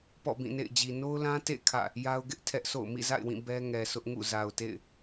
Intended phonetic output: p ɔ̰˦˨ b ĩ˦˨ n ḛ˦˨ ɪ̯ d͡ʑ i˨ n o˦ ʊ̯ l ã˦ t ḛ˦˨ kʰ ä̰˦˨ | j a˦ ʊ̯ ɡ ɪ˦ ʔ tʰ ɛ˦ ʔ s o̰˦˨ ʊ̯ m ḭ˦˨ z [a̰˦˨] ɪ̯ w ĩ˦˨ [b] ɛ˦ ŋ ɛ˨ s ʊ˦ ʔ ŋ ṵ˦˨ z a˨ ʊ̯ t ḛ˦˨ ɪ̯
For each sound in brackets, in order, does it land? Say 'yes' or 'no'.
yes, yes

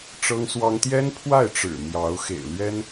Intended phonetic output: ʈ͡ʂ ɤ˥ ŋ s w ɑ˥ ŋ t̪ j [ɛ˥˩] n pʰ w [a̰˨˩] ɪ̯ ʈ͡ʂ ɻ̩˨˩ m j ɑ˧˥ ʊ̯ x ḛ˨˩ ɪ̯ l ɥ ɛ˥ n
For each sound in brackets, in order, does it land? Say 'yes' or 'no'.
no, no

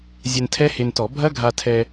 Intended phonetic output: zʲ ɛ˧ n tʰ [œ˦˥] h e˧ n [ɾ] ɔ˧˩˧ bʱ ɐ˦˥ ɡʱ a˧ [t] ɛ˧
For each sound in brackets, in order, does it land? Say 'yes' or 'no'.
no, no, no

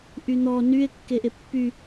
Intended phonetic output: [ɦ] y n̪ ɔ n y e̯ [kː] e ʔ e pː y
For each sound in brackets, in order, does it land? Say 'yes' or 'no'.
no, yes

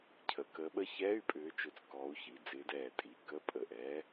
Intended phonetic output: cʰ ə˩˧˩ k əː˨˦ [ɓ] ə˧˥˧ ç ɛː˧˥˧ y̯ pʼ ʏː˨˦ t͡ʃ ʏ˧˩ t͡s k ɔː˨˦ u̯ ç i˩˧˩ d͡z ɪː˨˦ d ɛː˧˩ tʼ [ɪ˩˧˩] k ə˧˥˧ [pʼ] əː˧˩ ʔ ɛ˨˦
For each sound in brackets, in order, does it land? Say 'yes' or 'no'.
yes, no, yes

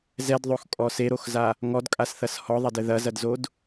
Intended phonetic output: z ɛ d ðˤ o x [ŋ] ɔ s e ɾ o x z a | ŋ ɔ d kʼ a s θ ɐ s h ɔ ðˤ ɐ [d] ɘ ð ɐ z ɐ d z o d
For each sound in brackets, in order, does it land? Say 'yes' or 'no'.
no, yes

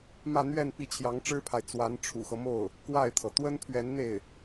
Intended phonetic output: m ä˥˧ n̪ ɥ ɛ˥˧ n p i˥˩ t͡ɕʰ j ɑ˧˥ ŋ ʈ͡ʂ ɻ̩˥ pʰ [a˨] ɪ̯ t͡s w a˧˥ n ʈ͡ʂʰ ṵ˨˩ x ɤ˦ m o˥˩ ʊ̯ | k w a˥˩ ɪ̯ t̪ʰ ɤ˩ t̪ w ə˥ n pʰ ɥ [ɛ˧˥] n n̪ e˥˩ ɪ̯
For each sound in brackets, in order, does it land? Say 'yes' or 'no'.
yes, yes

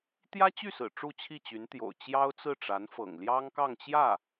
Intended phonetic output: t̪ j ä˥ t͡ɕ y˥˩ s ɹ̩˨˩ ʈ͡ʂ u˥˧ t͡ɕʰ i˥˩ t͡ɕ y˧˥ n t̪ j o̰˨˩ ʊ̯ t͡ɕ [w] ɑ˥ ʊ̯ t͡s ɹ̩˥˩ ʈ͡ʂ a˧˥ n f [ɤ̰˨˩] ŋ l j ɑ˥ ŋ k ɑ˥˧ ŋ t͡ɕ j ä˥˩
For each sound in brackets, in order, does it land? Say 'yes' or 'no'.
no, yes

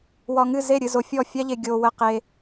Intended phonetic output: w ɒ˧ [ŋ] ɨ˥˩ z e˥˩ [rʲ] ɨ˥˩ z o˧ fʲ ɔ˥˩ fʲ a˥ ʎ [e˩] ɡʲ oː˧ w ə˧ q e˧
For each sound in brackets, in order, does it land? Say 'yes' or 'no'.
yes, no, no

